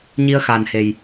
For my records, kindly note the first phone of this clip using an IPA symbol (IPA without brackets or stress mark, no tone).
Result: ɲ